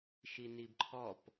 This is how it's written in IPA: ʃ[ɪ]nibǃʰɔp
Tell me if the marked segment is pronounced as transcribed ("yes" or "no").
no